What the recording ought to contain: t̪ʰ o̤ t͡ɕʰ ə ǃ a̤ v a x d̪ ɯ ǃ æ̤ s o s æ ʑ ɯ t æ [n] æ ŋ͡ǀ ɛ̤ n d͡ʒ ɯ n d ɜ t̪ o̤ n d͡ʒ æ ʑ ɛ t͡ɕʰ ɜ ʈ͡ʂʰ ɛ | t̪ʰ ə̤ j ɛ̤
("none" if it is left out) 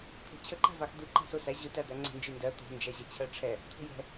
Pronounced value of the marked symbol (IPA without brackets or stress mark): d̪